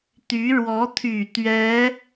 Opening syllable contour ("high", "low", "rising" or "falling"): rising